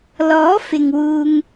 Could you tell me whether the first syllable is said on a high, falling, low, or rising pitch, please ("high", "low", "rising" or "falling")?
rising